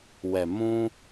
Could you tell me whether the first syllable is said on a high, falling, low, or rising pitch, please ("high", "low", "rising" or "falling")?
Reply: low